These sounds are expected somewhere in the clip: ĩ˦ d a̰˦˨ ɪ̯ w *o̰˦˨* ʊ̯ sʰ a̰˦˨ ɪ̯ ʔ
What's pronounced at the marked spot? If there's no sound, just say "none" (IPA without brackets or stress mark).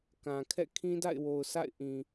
o˨